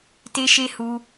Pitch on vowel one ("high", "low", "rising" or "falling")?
high